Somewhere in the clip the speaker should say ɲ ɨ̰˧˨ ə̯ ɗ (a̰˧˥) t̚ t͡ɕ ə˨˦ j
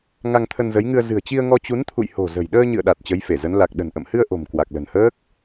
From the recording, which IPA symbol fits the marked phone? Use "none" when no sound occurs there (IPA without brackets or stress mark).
a˨˩